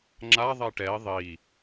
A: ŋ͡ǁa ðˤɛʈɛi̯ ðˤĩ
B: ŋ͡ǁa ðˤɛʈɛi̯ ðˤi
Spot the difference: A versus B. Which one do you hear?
B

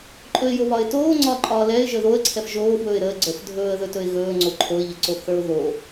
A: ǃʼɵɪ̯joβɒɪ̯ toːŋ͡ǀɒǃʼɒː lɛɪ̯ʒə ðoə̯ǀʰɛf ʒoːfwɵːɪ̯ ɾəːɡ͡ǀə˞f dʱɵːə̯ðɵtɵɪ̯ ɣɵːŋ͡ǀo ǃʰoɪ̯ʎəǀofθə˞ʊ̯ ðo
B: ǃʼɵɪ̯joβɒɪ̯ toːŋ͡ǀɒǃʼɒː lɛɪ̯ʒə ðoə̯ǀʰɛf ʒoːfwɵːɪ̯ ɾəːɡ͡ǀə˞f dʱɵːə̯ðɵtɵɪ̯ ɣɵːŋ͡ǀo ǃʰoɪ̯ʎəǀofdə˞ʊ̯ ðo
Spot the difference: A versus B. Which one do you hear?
A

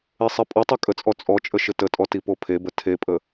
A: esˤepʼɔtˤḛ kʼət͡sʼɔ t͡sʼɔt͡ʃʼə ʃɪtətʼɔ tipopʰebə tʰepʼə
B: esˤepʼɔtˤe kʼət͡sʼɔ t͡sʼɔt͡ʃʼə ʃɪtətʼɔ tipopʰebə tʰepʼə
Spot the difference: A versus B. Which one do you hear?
B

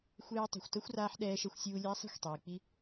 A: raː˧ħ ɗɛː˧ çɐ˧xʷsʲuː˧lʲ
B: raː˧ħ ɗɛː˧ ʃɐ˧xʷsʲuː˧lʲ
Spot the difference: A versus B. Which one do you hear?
B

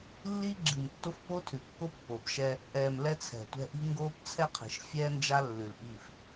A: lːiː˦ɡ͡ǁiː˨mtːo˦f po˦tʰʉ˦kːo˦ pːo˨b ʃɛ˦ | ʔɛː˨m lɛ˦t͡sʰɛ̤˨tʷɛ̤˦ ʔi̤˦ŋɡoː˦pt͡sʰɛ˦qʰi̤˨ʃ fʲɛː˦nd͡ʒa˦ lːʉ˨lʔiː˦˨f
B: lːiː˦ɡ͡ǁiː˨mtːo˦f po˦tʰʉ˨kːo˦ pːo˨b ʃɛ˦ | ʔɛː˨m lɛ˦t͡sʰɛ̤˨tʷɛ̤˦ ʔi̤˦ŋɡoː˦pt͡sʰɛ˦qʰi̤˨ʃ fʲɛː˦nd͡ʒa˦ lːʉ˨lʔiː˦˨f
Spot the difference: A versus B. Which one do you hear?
B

